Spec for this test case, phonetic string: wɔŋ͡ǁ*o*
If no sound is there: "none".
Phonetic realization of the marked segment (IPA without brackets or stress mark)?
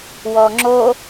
o